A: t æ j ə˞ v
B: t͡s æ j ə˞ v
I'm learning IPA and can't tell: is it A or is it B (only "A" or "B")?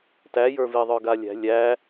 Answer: A